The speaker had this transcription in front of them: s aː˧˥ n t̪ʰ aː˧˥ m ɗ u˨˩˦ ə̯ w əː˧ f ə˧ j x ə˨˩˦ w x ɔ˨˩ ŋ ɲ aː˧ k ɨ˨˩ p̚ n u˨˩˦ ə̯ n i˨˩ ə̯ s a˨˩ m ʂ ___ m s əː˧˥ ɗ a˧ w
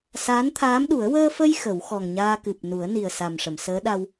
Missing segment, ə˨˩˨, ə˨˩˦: ə˨˩˨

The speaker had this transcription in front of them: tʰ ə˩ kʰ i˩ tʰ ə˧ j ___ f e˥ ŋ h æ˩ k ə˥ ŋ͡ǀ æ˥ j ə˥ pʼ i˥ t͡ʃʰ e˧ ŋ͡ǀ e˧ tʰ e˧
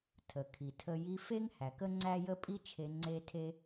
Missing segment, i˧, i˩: i˧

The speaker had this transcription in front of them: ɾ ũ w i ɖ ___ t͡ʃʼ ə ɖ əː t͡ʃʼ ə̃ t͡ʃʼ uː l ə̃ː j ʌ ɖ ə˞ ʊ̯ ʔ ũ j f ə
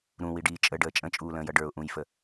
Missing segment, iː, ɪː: iː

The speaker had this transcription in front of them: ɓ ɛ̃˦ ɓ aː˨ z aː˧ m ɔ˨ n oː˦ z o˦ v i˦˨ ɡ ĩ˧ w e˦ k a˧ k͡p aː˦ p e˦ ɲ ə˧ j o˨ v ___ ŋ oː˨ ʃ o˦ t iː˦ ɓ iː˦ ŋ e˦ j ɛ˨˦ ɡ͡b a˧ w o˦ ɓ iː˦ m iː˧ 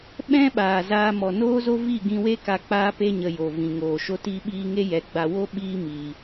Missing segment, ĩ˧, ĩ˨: ĩ˨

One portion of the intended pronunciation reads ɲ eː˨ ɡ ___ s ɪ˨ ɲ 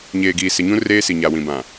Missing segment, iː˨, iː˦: iː˨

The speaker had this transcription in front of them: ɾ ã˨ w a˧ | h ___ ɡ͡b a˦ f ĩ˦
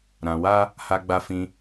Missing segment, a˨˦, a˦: a˦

